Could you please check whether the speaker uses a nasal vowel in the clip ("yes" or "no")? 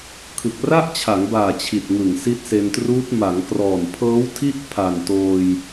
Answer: no